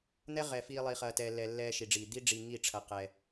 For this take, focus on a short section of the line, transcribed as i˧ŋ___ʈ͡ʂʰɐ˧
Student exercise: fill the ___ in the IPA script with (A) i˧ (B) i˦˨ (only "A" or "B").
B